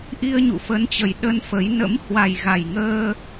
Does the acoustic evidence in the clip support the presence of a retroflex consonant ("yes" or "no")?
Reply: no